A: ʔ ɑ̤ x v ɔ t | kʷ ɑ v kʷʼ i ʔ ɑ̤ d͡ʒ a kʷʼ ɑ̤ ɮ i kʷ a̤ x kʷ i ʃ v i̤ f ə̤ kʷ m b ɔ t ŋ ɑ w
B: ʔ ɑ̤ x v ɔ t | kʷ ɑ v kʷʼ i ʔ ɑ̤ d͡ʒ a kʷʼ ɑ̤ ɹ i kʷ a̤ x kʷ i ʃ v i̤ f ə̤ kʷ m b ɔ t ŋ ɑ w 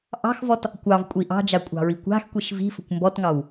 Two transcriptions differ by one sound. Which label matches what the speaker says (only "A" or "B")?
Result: B